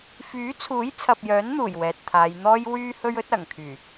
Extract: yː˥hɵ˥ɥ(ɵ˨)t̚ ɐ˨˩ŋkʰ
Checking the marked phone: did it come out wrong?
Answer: yes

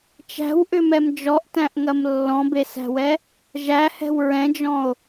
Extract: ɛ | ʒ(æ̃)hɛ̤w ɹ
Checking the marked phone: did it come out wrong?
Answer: yes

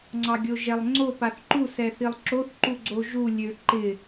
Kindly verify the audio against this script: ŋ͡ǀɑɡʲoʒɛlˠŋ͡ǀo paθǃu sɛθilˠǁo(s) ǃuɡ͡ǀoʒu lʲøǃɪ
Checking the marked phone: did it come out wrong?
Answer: yes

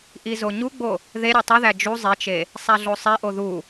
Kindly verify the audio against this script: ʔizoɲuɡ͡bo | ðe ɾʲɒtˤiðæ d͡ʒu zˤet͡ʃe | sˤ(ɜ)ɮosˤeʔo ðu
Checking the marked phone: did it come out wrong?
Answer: yes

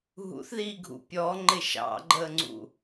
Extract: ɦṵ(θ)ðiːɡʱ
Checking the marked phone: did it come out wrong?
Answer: no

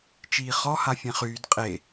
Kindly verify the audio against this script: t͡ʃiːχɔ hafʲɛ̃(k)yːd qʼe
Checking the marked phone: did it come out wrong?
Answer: yes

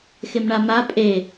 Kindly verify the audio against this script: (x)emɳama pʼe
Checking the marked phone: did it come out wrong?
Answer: no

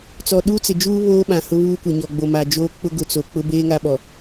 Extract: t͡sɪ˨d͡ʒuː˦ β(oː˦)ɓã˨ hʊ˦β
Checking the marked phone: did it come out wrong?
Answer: no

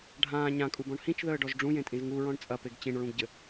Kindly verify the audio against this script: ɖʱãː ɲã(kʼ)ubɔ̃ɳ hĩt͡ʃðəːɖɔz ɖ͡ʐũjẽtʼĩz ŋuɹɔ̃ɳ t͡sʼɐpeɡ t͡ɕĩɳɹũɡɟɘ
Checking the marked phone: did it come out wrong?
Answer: no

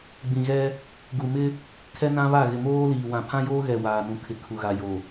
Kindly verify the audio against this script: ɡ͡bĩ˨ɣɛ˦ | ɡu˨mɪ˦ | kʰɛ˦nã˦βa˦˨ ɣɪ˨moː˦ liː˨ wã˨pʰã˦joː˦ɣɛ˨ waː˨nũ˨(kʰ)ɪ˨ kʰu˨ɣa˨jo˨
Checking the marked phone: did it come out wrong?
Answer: no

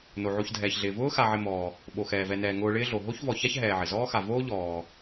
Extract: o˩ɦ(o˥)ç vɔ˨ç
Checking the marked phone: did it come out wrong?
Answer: no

